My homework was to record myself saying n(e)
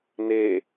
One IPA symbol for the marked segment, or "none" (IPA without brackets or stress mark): e